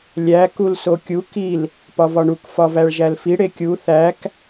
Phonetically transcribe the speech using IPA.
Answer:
lʲ æ k u l s o kʲ u k i l | p ɒ v ɒ ɳ u k f ɒ v æ ɭ ʒ æ l f i ɽ e kʲ u θ æ k

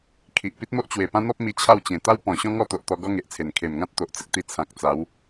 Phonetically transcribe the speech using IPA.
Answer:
kʰ i˨ ʔ p i˦ t̚ m o˦ ʔ t͡ɕ w e˨˩ p ã˦ n̪ ɔ˦ p̚ m i˧ t͡ɕʰ a˥˧ w t͡ɕ ẽ˨˩ t̪ a˦ w p ɔ̃˨˩ ɕ ɔ̃˦ ŋ ɔ˥˧ t̪ o˨ ʔ t̪ ɔ˧ ɡ ɔ˦ ŋ e˨ ʔ t͡sʰ e˨˩ n kʰ e˨˩ m ŋ ã˦ t̚ t̪ o˨ ʔ t͡s ə˦ k̚ t̪ i˧ t͡sʰ ã˨ k̚ t͡s a˨˦ w

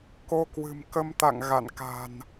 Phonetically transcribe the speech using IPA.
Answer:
k o˧ k w ɨ̤˨˩ m k ə˧ m t̪ a̰˧˨ ŋ ɣ a̰˧˨ n k a̤˨˩ n

